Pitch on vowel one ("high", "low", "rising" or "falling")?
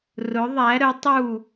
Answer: rising